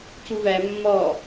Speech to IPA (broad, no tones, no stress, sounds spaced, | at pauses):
c u v æ mː ɔː